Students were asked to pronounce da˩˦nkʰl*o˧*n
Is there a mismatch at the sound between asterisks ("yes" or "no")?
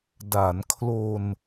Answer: no